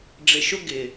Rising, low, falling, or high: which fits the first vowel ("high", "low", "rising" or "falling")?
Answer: low